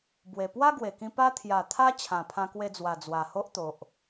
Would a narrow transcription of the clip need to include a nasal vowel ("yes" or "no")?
yes